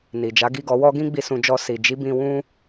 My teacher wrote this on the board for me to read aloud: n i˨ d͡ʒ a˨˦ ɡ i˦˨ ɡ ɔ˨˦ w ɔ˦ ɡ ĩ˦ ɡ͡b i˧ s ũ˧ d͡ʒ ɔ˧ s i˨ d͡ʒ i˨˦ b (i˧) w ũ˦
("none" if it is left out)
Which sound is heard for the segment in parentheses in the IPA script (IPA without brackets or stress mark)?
ĩ˧